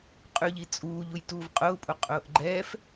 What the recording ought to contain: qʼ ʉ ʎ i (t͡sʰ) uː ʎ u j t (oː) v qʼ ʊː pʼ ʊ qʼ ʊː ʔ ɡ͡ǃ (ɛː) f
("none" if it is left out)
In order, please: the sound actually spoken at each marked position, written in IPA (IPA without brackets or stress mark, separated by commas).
t͡sʼ, uː, ɛː